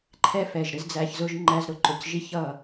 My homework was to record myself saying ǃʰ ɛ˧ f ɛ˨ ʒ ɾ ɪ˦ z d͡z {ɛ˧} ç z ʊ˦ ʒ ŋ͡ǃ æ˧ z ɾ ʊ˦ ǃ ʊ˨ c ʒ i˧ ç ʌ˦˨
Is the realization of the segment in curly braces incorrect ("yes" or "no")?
yes